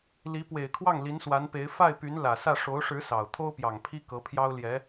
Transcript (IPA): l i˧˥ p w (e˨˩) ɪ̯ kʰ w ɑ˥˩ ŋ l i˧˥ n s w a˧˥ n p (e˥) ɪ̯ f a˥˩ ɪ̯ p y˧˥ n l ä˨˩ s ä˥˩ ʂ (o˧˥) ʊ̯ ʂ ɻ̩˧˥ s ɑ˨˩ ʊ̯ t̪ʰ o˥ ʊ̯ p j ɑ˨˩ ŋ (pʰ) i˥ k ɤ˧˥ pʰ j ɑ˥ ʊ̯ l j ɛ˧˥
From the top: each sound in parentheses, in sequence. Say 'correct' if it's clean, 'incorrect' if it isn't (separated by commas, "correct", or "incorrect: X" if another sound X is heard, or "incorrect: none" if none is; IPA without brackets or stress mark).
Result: correct, incorrect: e˧˥, correct, correct